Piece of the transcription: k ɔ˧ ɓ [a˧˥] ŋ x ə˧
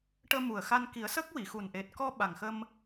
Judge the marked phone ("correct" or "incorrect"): incorrect